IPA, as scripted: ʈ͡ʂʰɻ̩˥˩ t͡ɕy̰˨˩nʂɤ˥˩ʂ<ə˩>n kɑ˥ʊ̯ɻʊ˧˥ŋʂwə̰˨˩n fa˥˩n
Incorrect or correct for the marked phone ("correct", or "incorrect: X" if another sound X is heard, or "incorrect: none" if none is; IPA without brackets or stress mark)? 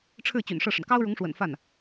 correct